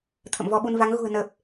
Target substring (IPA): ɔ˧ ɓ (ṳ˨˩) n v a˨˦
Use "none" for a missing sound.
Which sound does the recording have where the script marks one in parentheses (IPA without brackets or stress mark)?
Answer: u˧